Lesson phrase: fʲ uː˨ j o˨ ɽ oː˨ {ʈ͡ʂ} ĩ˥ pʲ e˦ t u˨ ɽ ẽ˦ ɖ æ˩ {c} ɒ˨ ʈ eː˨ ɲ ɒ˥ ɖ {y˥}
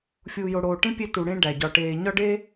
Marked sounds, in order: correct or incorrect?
incorrect, incorrect, incorrect

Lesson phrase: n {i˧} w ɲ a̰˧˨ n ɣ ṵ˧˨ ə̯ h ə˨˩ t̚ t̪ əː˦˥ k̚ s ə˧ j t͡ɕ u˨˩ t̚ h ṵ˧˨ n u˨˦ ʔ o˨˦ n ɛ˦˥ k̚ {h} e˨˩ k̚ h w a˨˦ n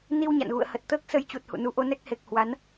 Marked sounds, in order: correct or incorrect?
correct, correct

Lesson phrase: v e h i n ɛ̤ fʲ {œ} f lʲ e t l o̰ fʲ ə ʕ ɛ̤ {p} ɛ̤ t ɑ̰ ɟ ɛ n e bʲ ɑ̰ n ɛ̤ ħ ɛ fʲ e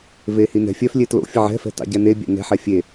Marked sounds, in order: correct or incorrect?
correct, incorrect

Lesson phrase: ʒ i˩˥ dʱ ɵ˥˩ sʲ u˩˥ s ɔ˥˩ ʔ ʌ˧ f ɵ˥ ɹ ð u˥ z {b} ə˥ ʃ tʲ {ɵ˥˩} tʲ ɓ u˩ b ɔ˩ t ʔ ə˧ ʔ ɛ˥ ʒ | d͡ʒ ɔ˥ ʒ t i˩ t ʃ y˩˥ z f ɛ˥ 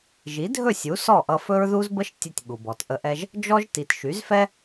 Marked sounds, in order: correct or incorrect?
correct, incorrect

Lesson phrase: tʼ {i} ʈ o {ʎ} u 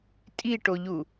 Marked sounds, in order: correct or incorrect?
correct, correct

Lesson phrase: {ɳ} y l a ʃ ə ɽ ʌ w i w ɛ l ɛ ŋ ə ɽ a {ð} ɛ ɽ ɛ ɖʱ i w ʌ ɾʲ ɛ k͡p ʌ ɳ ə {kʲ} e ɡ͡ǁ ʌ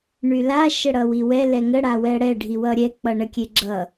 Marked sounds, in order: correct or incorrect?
correct, incorrect, correct

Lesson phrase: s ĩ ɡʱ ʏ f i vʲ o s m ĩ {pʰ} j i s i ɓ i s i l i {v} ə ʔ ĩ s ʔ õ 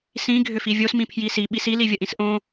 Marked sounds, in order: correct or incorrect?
correct, incorrect

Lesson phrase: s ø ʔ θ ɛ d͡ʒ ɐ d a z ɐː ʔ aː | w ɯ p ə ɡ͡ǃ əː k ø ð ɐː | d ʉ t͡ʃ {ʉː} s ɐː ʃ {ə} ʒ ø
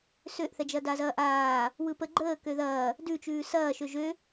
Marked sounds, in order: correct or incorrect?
correct, incorrect

